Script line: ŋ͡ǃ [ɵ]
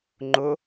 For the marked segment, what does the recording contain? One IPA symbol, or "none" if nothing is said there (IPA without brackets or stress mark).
ʊ